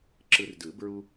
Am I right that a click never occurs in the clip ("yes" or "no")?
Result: no